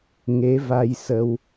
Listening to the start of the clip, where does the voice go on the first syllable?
rising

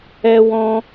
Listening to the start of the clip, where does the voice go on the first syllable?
high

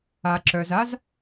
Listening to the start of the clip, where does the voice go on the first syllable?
low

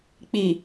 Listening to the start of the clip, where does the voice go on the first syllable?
low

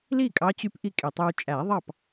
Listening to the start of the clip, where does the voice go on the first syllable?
falling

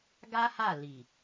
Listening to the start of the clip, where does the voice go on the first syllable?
high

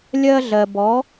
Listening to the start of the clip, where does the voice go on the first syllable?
high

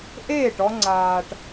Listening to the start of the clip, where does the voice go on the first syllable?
falling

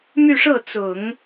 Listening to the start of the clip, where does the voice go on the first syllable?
falling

